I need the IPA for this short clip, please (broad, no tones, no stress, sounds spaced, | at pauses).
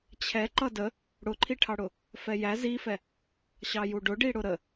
t͡ɕʰ ɛ ǃ ʌ d ə | ɽ ʊ ǃʰ i ʈʰ ɑ ɽ ʊ | f ɛ j æ z i f ɛ | ɕ ɑ j u ɖ ʊ ɖ i ɽ ʊ ɾ ə